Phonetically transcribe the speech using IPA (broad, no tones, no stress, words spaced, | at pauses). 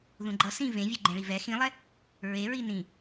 ðũɡ͡ǃʌ sĩ vẽvʲu ɡ͡ǃẽɭivɛ xĩlˠɛ | ɹe ɹinĩ